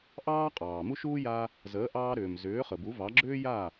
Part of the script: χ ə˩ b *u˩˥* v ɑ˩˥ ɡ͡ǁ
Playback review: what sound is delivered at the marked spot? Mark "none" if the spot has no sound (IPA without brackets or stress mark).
u˩˥